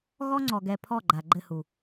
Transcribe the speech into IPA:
ɣɔ˦ŋ͡ǀɔ˨ɡɛ˨ pʰɔ˦˨ɡ͡ǃa˨ ɡ͡ǃɘ˦˨hu˨

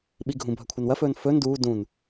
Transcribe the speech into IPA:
ɓiɡʱũ bʱɐkʷʰɐnwɐfɵːn fɵn duː dũn

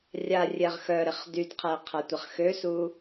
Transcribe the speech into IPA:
rʲa rʲɛʁxœɾɪχ dydqʰɛ qʰɐtʷɐχxøsu

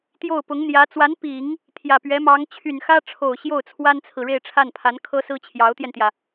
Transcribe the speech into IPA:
t̪jo˥˩ʊ̯pʊ˧˥ŋ n̪jä˧˥ t͡swa˧˥npi˨˩˦ŋ | t̪ʰjä˨˩pɥɛ˧˥ mɑ˧˥ŋ t͡ɕʰy˨˩nxä˥ ʈ͡ʂʰo˨˩ʊ̯ɕjo˥˩ʊ̯t͡sʰwa˥nt͡sʰɹ̩˨ ɻe˥˧ɪ̯ʈ͡ʂʰa˥˩npʰa˧˥n kʰɤ˥sɹ̩˥ t͡ɕʰjɑ˧˥ʊ̯t̪jɛ˧nt̪jä˩

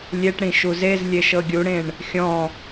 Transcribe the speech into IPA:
lʲeʈɽĩ ʃuzezlʲe ʃɤɡʲuɽẽɳ | xʲɔ̃

